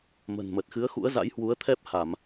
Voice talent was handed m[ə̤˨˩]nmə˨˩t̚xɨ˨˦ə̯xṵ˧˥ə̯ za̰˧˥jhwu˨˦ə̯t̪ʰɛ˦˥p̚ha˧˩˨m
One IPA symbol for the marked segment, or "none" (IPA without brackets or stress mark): ə̤˨˩